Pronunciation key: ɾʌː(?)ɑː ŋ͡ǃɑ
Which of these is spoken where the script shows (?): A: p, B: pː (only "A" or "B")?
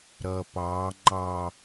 A